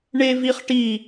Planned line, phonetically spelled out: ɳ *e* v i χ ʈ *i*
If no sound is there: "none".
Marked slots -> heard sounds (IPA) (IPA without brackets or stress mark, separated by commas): e, i